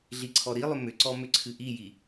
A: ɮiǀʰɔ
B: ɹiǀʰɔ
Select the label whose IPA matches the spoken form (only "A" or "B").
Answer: A